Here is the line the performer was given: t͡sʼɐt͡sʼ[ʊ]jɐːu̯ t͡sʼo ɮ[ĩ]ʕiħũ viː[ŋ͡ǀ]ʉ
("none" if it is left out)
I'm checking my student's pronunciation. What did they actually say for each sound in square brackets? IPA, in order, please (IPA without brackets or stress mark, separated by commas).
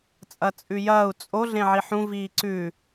ʉ, ẽ, ǀ